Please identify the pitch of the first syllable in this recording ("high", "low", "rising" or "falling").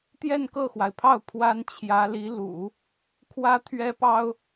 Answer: falling